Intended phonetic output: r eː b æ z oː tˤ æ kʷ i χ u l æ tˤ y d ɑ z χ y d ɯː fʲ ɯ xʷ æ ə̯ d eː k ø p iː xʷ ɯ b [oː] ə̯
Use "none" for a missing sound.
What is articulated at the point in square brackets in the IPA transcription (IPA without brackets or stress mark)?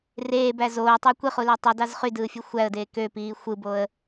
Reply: o